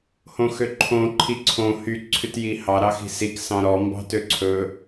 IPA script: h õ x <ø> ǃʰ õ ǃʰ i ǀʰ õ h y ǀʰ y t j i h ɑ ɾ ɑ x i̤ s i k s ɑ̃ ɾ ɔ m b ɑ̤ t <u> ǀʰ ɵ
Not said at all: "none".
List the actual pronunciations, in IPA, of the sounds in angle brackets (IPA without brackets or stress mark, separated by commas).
ø, ø